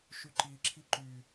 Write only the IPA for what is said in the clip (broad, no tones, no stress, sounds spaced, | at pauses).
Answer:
ʃ y ǃ i ǁʰ i ǃ y